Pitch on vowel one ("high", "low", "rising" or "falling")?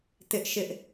high